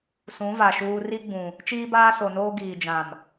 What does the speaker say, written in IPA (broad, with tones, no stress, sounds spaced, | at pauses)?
s ũ˨˦ v a˨ ʃ uː˦ r i˦ ɡ͡b ũ˨ | t͡ʃ iː˦ b aː˦ s o˨ n oː˦ ɡ iː˨ d͡ʒ ã˨ m